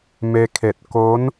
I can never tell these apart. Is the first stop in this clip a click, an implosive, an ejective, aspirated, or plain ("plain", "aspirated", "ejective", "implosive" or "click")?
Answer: aspirated